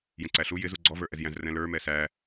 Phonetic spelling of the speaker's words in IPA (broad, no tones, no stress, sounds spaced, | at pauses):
j ə̃ ǀ æ ɬ u j ɪ z u ɡ͡ǀ ɔ v ə˞ ʔ ɛ z j æ̃ z r ɛ̃ l ə˞ m ɛ s æ